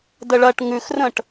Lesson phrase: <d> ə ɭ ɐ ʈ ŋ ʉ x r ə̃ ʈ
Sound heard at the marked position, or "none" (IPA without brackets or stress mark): d